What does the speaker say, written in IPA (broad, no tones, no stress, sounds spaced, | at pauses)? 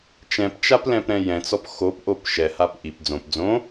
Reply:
t͡ʃ ɛ̃ p t͡ʃ a p l ɛ̃ p ɾ ɛ̃ j ɛ̃ t͡s ɔ p x o p ʔ o p ʃ ɛ h a p ʔ i p d͡z õ p d͡z õ